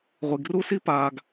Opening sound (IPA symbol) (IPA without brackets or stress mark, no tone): ʁʷ